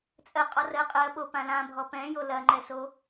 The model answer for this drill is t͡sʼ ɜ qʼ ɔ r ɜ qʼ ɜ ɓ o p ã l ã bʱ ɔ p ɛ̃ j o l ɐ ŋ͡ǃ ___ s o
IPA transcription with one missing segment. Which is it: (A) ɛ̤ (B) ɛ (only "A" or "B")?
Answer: B